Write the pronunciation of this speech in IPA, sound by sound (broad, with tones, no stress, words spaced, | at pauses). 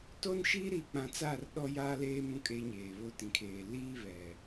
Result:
to˦nʃi˦ ɾiː˨k͡pã˨t͡saː˦˨r ɗɔ˦ jaː˦leː˦ mũ˦kʼeː˦ɲeː˨βo˦ tĩ˨kʰeː˨ liː˦βɛ˨